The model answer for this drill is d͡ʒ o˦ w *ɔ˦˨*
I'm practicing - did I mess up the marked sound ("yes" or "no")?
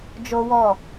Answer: no